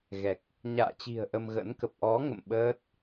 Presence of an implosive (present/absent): present